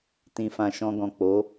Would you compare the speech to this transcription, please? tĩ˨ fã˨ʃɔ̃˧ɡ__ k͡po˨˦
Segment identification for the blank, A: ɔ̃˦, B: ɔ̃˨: B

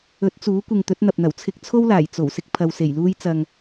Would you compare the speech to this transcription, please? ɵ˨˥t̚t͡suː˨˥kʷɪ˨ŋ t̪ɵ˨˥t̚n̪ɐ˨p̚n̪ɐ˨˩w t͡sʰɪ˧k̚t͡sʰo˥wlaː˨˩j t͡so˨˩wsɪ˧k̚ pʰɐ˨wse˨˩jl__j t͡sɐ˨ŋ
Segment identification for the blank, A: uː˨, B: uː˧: B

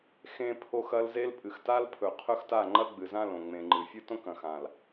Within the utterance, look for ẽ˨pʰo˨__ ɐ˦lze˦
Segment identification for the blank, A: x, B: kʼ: A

